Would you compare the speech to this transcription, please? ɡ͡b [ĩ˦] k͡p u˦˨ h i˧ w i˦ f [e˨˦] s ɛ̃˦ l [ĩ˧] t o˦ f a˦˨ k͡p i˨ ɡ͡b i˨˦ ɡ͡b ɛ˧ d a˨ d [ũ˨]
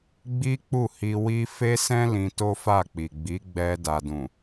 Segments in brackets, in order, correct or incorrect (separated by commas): incorrect, incorrect, correct, correct